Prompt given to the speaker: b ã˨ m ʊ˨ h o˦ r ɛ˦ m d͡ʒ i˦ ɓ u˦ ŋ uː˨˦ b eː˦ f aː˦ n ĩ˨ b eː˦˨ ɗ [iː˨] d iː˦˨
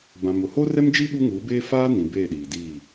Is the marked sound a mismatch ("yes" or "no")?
no